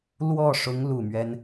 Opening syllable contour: falling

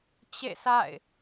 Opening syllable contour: falling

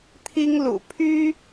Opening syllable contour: high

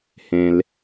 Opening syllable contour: low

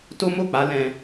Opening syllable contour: high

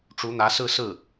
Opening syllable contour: rising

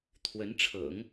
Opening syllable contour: rising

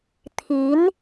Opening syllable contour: rising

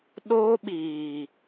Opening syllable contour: high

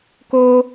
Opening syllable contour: high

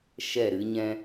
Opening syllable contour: falling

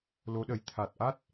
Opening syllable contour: rising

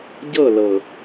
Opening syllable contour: falling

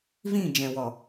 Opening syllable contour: falling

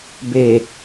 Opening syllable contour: low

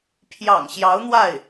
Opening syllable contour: low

